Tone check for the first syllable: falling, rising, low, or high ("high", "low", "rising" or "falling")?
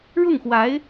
falling